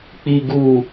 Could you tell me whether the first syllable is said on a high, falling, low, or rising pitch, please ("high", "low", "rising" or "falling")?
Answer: low